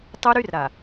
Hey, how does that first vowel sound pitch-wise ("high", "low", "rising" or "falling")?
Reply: high